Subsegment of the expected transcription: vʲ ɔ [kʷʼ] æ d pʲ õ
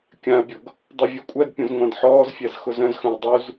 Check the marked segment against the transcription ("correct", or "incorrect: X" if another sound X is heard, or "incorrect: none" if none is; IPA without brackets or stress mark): correct